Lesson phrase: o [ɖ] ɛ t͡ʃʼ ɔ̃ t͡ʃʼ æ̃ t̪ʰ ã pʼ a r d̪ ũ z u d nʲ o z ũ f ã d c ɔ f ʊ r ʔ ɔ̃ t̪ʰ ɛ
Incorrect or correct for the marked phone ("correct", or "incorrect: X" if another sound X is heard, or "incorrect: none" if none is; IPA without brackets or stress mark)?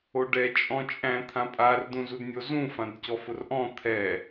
correct